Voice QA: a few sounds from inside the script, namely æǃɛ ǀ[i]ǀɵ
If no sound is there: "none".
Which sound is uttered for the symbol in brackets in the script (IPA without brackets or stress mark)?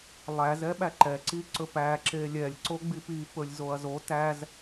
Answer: i